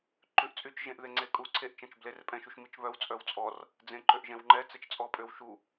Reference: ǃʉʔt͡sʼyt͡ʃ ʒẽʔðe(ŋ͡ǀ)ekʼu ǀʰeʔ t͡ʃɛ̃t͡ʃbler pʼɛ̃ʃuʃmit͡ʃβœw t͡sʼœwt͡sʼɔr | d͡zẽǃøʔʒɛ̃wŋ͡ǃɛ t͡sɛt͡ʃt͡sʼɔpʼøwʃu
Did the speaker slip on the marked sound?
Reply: no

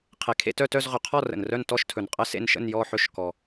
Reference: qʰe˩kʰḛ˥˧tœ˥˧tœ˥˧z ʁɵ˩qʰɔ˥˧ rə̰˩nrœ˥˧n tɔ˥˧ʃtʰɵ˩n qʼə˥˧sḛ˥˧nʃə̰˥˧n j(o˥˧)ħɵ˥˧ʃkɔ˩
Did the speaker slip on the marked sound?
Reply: yes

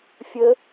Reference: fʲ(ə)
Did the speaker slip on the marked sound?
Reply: no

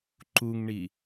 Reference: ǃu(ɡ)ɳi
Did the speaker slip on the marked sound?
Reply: yes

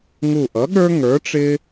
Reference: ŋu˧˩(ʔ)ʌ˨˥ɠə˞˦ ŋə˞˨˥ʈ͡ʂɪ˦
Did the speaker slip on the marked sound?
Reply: no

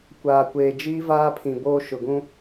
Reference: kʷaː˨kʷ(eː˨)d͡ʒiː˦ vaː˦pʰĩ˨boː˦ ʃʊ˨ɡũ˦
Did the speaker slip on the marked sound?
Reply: no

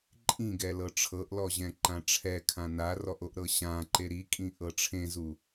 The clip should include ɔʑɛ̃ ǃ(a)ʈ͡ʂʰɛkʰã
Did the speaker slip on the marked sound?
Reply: yes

